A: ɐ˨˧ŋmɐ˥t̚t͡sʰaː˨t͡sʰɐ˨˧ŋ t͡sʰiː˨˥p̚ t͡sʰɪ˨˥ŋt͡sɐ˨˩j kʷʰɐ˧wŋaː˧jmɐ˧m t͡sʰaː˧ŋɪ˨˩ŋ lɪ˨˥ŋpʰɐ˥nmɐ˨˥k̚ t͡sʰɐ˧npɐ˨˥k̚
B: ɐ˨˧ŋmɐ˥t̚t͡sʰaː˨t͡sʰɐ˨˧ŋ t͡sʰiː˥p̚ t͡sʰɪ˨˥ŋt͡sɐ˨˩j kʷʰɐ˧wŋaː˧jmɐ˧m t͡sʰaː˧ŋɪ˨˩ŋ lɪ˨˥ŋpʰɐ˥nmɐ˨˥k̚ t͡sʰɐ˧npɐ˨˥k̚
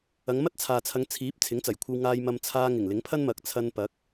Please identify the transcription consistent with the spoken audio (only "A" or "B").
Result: A